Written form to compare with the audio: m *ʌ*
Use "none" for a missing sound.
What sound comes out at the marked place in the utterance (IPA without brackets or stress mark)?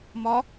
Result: ɒ